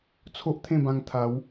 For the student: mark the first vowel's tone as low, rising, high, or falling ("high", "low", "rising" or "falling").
high